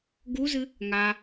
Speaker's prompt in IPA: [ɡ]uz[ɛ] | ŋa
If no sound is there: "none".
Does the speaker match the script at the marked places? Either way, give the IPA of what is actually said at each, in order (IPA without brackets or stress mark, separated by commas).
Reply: ɡ, ɨ